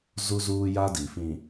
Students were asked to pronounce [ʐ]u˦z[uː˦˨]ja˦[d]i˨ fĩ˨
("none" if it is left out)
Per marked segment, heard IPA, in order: z, uː˦, d

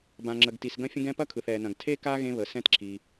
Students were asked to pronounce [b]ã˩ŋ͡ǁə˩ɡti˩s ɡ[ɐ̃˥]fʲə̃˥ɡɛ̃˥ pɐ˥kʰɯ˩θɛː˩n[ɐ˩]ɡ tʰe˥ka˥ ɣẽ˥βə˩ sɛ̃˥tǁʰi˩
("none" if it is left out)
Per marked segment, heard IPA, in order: b, ɐ̃˥, ɐ̃˩

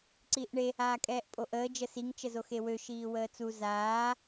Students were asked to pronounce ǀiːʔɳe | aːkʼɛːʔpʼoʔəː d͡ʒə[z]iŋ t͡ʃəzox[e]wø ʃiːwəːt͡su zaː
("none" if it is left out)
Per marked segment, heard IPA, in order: s, e

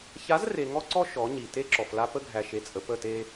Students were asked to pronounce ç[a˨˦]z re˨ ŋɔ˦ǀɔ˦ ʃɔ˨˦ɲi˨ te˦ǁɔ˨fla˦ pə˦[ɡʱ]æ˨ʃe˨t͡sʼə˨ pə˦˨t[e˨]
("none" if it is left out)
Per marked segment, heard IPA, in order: a˨˦, ɡʱ, e˦

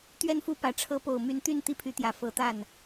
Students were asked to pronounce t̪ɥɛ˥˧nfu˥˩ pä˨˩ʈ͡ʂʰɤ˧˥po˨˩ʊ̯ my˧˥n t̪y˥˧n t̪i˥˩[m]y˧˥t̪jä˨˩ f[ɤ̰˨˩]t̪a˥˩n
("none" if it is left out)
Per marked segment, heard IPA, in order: pʰ, ɤ˧˥

